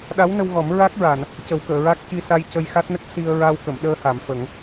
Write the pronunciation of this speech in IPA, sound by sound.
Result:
ɗ a˧˥ w n ə˧ w ɣ ɔ˨˩˦ m ɹ a˦˥ k̚ ɹ a˨˩˨ n | c ə˨˩˦ w k əː˨˩˨ ɹ a˦˥ k̚ c i˧ s a˧ j c ə˧ j x a˦˥ t̚ n ə˦˥ k̚ s i˧ ə̯ ɹ a˧ w k ə˨˩˨ m ɗ əː˧ h a˨˩˨ m f ə˨˩˦ ŋ

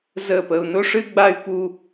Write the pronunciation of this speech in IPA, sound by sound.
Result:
z ə˦˨ p ə˧ u̯ n ʊ˦ ʂ ɨ˦ ɡ͡b a˦ y̯ p u˦

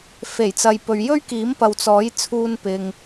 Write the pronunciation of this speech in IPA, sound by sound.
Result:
f e˨˩ j t͡s ɐ˨ j p ɵ˨ ɥ j ɵ˥ ɥ k iː˨˥ m p ɐ˨ w t͡s ɔː˨˥ j t͡sʰ uː˧ n p ɪ˨ ŋ

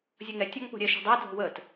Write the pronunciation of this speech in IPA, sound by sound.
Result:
zʲ ʌ ŋ ɛ tʲ ɔ ŋ p o̤ ɾʲ ɛ ʃ o̤ dˤ ɛ dʱ o̤ w ə t

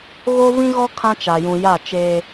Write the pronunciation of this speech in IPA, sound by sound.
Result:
ɣ o˦ v ĩ˦ ɣ ɔ˦ kʰ ã˦ t͡ʃ a˨ j ũ˨ j a˦˨ t͡ʃ eː˦

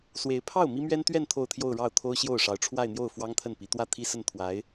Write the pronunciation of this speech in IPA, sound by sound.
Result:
s w e˧˥ ɪ̯ pʰ ɑ˥˩ ʊ̯ m i˥ m ɥ ɛ˥ n t̪ ɥ ɛ˥˧ n t̪ʰ o˥˧ ʊ̯ t̪ʰ j o˥˧ ʊ̯ ɻ ɑ˥˩ ʊ̯ t̪ʰ o˥ ʊ̯ ɕ j o˥˩ ʊ̯ ʂ ɑ˧˥ ʊ̯ ʈ͡ʂʰ w a˥˧ ɪ̯ n̪ j o˥˩ ʊ̯ f w ɑ˥ ŋ t̪ʰ ə˥˩ n p i˧˥ t̪ w ä˥˩ t̪ʰ i˥ s ə˥˩ n t̪ʰ w a˧˥ ɪ̯

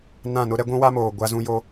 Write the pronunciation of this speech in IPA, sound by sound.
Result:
n ã˦˨ n ʊ˦ ɾ ɛ˦ ɡʷ ũ˦ w a˦ m oː˨ ɡʷ a˦ z ũ˦ j o˦

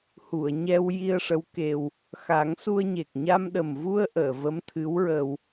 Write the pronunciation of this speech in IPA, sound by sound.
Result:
h u˨˩˨ ə̯ ɲ ɛ˧ w j i˧ ə̯ ʂ ə˧˥ w k e˧ w | x a˨˩˦ ŋ s u˧ ə̯ ɲ e˨˩ k̚ ɲ a˧ m ɗ ə˨˩ m v u˧ ə̯ ʔ əː˨˩˨ v ə˧˥ m t̪ʰ ɨ˧˥ w ɹ ə˧ w

